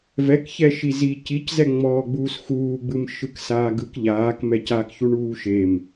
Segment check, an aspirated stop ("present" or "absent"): absent